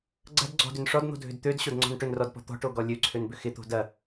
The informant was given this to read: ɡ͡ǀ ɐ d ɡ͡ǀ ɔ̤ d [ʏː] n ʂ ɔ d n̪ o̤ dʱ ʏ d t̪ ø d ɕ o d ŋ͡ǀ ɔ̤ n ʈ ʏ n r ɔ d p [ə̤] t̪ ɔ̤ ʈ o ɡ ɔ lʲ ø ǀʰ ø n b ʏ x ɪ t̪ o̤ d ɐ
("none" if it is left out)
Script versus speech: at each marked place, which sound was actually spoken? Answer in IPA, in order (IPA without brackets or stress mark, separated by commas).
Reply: ʏ, ɔ̤